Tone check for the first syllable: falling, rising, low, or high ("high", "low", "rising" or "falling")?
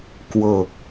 low